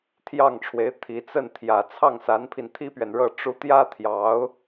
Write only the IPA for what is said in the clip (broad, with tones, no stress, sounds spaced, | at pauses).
t̪ʰ j ɑ˥˩ ŋ ʈ͡ʂʰ w e˧˥ ɪ̯ t̪ʰ i˧˥ t͡s ə˥˩ n t̪ʰ j ä˨˩ t͡sʰ ɑ˥˩ ŋ s a˧˥ n pʰ i˧ n t̪ʰ i˥ p ɥ ɛ˨ n ɻ ɤ˥˩ ʈ͡ʂ u˥ t̪ j ä˥ t̪ʰ j ɑ˧˥ ʊ̯